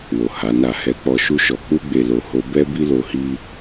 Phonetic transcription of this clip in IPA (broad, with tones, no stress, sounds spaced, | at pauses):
w o˨ h a˨˦ n a˦˨ h ɛ˧ k͡p ɔ˧ ʃ u˦ ʃ ɔ˧ k͡p u˦ ɡ͡b e˧ l o˧ h o˦ b ɛ˦ b i˦ l o˧ h i˦